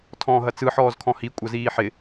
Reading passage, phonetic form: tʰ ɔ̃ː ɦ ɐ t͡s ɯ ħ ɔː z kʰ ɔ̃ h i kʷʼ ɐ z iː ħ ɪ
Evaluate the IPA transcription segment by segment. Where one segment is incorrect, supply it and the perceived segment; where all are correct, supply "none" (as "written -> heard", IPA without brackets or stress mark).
none